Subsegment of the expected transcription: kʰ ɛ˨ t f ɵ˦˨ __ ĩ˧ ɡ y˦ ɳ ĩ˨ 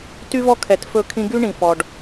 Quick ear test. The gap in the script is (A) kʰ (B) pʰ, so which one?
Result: A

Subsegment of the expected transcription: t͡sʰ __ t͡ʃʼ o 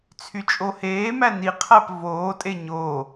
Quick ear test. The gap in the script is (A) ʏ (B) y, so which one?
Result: B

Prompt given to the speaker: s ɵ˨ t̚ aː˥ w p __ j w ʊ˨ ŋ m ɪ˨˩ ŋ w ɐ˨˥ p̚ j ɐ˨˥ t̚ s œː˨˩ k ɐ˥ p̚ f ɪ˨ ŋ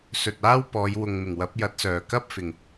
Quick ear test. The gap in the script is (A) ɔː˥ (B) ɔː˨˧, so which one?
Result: B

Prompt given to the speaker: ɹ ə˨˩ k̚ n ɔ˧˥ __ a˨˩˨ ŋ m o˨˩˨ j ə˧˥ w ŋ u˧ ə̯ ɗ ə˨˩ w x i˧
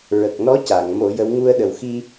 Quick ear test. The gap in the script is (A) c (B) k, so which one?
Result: A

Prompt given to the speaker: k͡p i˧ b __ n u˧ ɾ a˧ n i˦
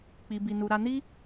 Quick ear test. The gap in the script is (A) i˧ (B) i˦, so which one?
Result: A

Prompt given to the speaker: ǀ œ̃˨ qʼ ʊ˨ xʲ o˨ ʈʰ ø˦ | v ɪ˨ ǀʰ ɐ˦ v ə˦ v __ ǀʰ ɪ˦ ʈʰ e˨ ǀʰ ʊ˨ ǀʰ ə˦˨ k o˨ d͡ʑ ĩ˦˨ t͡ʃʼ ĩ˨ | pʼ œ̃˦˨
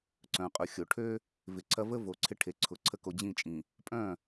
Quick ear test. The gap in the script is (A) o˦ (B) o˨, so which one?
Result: B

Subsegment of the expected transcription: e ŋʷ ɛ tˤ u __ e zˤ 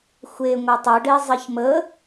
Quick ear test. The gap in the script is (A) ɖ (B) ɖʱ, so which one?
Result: A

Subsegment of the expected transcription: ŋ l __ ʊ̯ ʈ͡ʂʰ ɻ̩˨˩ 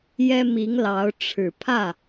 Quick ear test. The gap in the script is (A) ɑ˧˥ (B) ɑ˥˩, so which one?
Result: A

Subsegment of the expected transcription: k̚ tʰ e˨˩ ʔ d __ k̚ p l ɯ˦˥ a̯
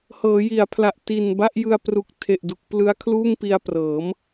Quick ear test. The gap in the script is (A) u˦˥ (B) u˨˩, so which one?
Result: B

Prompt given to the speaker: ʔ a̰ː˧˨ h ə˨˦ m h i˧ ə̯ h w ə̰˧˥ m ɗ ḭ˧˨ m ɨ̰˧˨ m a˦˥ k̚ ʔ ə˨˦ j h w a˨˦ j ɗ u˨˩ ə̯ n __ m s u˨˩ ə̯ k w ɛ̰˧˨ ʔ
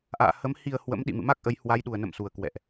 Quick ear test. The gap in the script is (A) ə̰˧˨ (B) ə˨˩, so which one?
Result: A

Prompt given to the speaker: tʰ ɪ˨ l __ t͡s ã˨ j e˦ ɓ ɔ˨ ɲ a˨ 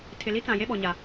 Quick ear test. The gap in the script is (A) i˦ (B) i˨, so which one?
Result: A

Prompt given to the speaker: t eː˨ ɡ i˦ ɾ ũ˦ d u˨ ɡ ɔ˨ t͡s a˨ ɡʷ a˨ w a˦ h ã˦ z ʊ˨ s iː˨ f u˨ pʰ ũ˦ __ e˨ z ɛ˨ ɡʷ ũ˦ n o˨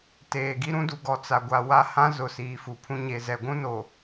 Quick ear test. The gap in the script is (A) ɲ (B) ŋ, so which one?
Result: A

